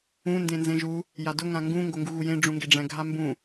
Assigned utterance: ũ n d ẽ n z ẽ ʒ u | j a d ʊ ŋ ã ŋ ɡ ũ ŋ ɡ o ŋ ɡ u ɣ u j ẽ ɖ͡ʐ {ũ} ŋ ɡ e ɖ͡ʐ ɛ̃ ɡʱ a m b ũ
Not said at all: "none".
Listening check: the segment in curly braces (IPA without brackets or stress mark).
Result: ũ